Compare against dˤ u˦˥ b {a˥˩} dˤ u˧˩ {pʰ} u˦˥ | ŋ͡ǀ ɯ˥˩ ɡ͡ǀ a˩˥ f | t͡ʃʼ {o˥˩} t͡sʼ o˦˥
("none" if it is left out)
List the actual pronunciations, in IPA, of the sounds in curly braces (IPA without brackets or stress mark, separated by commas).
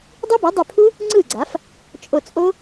a˩˥, pʰ, o˧˩